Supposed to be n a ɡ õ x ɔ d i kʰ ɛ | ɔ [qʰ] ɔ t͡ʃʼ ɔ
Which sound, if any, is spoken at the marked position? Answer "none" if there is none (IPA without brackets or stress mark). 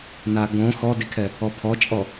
pʰ